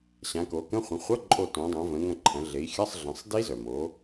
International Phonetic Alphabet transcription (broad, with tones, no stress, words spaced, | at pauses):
ɕã˩˧ko˩˧kə̃˧˥˧ χʷə̃˩˧χʷʌ˧˥˧ǃʼo˧˩ tõ˩˧dˤœ̃˩˧ və̃˩˧ŋɐ̃˧˩ǃʰɐ̃˩˧ ɮe˩˧i̯xʲɐ˧˥˧sˤ ɮə̃˩˧sˤdi˦˥ zœ˩mo˩˧